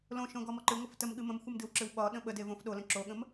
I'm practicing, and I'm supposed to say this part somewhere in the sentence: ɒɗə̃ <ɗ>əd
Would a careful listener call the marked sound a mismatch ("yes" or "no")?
yes